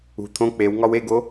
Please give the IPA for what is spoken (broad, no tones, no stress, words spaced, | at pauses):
ṳ t̪ʰõ k͡pewŋɒw eɡo